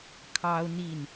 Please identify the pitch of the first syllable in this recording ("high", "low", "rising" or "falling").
high